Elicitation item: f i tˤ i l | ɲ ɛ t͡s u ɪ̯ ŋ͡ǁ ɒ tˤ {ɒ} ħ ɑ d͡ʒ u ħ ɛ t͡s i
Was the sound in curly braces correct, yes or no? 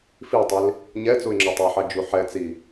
no